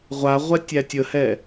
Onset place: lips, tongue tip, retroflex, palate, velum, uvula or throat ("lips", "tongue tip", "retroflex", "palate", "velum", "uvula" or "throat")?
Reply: uvula